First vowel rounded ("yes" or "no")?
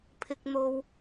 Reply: no